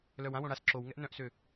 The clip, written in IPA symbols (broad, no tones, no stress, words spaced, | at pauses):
lœwãwõ ɽas ǁowŋɛʔ nœ̃ʔsø